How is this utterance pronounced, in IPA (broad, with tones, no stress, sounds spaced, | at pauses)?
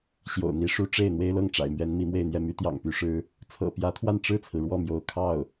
ɕ j o̰˨˩ ʊ̯ n̪ i˧˥ ʂ u˥ ʈ͡ʂ e˥˩ ɪ̯ n̪ w e˥ ɪ̯ l ɤ˥˩ ŋ ʈ͡ʂ a̰˨˩ ɪ̯ m ɥ ɛ˧˥ n m i˧˥ m w e˥˧ ɪ̯ n̪ j ɛ˥˩ m y˧˥ t̪ j ɑ̰˨˩ ŋ p y˧˥ ʂ ɻ̩˥ | t͡sʰ ɤ̰˨˩ p j ä˧˥ t̪ʰ w a˥˧ n ʈ͡ʂ ɻ̩˥˩ t͡sʰ ɹ̩˩ ɻ w ɔ˥˩ m j o˧˥ ʊ̯ kʰ ɑ˥˩ ʊ̯